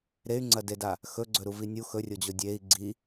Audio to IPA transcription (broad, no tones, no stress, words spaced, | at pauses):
ɾey̯ŋ͡ǀɐdeda | xɵɡ͡ǀɵɾuvi nʲux ɵrʲod͡ʑo dʲei̯ ɡ͡ǀi